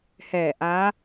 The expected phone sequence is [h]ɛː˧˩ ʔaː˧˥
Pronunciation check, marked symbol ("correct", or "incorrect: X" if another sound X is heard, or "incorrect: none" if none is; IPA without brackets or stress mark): correct